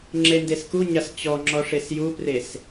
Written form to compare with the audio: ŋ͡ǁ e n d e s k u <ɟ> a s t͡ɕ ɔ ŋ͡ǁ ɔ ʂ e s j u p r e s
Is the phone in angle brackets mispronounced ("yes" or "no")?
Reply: yes